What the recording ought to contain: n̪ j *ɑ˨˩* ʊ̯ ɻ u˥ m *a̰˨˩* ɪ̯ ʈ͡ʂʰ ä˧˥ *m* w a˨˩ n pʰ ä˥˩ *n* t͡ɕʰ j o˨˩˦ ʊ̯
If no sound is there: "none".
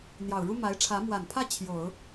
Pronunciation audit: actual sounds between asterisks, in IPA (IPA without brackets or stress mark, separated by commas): ɑ˨˩, a˧˥, m, none